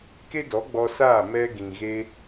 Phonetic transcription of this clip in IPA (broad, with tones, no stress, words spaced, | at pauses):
ke˦dɔ˨˦ɡ͡bɔ˧ saː˦˨ mɛ˧ɡĩ˨ɣe˧